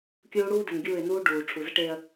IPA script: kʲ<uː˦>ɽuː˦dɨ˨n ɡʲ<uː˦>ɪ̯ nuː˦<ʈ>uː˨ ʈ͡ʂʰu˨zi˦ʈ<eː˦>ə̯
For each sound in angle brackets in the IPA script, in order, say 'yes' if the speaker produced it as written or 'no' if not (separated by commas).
yes, no, no, yes